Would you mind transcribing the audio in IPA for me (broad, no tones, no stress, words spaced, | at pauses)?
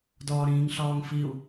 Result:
dɒːɾĩːŋɬɒːŋfiu̯